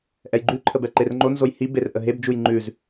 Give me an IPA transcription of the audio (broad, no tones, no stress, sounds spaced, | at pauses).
ʔ ɛ j ɡ͡ǃ ʉ ǃʰ ə b ɛ ǃ e r ŋ͡ǃ o n z o j h i b e r ʔ ə ɦ e b d͡ʒ u j ŋ͡ǃ ʉ z